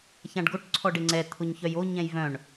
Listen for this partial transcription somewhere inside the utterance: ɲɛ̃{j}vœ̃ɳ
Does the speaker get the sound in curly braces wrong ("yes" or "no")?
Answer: no